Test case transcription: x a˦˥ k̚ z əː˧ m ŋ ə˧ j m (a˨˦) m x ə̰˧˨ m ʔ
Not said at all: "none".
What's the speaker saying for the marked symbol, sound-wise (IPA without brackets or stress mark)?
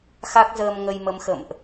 ə˨˦